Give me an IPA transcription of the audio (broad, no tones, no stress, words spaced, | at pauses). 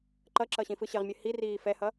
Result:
ǃʌǁʌ ɕĩfɯɕɘʁmʲɘ hiriː fɛhʌ